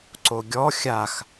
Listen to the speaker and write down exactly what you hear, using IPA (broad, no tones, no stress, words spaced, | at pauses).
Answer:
ǀoɡʲɔ xʲax